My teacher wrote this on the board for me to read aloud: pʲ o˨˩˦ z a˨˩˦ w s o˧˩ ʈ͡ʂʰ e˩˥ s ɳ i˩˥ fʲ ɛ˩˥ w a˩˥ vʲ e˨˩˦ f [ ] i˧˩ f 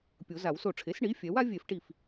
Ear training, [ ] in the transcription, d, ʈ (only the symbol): ʈ